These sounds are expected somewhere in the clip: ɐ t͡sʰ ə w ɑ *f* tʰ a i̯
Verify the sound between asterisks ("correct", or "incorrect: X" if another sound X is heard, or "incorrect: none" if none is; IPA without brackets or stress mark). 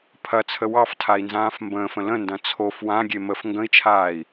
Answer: correct